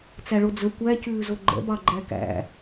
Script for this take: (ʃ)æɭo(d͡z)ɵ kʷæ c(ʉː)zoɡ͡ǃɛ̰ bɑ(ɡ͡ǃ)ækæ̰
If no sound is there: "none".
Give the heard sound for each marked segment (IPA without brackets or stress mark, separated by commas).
t͡s, d͡z, ʉː, ɡ͡ǃ